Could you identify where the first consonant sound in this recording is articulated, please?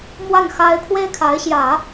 labial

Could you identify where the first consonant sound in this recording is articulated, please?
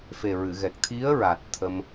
labial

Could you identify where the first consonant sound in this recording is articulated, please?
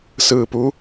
alveolar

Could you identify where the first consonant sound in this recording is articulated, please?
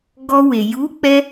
velar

